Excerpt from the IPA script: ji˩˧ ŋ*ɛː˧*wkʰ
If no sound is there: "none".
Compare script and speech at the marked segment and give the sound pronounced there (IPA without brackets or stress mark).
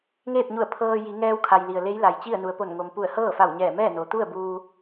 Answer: ɛː˧